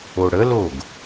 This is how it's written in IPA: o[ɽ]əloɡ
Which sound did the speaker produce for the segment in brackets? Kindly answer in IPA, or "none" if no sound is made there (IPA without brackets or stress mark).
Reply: ɽ